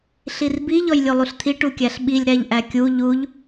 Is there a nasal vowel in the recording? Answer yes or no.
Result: no